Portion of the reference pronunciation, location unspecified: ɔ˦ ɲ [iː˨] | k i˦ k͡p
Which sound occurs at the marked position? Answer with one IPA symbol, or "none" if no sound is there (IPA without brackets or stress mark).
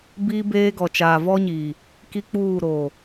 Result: iː˨